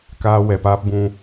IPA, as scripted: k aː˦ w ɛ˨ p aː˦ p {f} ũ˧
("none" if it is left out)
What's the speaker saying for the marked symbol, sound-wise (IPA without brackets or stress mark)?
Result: b